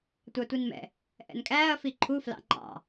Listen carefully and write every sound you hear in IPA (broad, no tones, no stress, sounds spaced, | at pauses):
tʷ ɑ tʷ i n m ɛ̰ | ʔ ɛ̰ n kʼ æː ɐ̯ f i ǃʰ u f l ɑ̰ ŋ͡ǃ ɑ̰